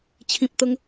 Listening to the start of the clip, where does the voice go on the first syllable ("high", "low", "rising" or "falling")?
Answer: low